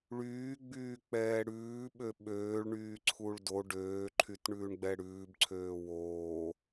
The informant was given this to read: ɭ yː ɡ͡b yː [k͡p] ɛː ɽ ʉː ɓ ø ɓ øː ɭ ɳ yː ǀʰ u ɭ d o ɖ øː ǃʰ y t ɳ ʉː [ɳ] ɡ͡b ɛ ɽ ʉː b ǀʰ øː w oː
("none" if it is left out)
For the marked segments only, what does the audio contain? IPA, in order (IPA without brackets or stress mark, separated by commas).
k͡p, ɳ